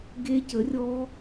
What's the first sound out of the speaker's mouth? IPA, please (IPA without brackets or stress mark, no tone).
ɡ